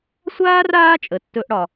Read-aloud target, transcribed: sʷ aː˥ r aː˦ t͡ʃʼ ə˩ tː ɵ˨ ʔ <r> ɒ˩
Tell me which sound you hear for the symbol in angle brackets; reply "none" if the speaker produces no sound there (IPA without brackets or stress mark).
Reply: ɽ